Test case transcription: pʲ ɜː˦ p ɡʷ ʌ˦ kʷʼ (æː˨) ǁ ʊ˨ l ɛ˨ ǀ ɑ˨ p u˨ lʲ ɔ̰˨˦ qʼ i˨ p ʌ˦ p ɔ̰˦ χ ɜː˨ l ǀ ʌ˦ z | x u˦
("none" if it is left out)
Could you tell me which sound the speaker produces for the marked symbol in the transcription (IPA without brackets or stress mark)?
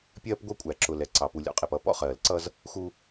æ˨